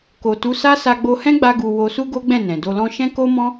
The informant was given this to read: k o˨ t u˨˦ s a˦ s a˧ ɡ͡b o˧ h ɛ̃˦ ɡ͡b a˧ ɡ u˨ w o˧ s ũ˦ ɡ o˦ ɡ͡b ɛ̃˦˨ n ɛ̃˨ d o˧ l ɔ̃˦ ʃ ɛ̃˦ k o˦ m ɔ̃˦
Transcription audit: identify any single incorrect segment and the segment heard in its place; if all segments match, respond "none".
ũ˦ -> u˦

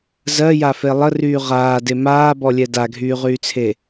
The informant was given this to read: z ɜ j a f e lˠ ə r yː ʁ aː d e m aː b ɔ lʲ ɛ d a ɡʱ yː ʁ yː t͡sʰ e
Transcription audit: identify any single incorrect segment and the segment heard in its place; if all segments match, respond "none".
none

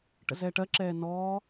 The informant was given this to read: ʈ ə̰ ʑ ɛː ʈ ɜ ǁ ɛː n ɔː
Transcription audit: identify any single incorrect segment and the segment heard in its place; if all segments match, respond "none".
ʑ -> z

